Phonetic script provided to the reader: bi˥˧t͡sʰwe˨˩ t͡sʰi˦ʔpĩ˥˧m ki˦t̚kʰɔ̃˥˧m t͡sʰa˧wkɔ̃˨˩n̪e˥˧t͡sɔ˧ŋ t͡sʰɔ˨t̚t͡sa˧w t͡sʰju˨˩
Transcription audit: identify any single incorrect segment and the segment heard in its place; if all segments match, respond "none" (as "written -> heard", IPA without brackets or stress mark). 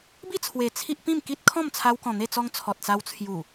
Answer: none